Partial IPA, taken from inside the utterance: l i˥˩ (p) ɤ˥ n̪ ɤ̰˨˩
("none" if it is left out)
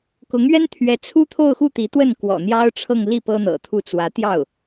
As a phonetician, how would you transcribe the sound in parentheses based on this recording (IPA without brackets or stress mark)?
p